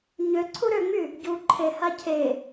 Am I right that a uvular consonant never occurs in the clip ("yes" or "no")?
yes